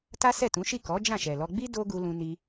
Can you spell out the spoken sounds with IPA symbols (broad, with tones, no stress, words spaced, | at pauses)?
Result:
ta˦sɛ˦˨tũ˨˦ʃi˦˨ kɔ˨˦ d͡ʒã˦˨ʃɛ˨lɔ˧ ɡ͡bi˦ do˦ɡu˧lũ˧ ni˧